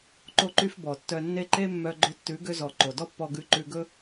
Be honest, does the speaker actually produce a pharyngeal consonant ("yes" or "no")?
no